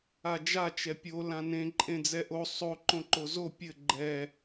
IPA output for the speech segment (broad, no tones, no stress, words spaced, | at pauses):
ad͡ʒa t͡ʃɛpʲo lãnẽ ǃʼẽd͡zɛʔo sˤo ǃõǃozo pʲɘ ɡ͡ǃɛ